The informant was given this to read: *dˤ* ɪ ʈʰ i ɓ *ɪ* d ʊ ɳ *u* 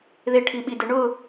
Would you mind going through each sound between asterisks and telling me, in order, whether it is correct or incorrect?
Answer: incorrect: ð, incorrect: i, incorrect: ʊ

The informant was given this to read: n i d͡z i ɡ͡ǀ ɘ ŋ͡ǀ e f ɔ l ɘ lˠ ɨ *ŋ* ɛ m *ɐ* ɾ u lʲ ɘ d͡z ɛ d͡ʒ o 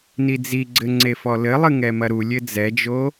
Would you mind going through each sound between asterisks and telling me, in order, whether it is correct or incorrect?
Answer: correct, correct

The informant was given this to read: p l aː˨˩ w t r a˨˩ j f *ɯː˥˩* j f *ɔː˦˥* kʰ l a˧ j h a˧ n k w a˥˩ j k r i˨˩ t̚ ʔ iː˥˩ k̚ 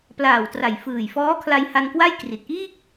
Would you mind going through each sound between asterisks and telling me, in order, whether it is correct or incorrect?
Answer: incorrect: ɯː˨˩, correct

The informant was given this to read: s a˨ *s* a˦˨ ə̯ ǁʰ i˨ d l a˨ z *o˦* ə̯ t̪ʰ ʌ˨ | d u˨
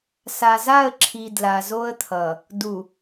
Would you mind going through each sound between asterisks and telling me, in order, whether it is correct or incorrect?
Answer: incorrect: z, correct

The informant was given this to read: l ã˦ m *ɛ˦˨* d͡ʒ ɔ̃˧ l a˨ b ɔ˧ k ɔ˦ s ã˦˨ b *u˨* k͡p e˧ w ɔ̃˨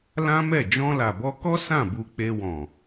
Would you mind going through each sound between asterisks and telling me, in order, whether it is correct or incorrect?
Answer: correct, incorrect: u˧

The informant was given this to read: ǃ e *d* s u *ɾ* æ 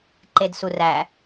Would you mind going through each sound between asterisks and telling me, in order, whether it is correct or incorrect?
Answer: correct, incorrect: r

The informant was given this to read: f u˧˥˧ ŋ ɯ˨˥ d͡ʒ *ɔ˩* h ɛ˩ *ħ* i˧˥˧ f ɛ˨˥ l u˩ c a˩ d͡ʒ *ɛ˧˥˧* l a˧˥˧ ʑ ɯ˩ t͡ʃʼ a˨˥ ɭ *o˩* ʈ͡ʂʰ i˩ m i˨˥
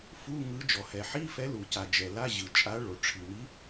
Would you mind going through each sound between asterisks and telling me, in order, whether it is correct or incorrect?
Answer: correct, correct, incorrect: ɛ˩, correct

